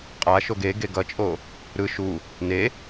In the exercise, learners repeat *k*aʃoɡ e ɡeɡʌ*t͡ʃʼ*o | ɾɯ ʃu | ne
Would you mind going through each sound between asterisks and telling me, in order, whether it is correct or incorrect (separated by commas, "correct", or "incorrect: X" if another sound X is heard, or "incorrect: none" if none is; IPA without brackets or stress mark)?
incorrect: qʼ, correct